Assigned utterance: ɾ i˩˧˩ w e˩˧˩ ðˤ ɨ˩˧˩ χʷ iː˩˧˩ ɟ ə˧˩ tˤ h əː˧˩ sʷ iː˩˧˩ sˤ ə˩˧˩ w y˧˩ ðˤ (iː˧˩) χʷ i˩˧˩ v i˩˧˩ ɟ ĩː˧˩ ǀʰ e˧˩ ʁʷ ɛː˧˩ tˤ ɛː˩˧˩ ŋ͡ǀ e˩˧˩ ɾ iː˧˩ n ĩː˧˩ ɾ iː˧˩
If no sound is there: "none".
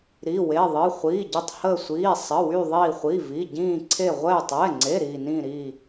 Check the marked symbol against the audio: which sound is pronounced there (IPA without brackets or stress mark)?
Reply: iː˧˩